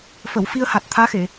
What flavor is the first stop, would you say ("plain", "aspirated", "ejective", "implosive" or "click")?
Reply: plain